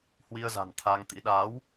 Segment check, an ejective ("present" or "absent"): absent